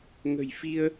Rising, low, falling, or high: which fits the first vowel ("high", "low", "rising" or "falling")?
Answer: low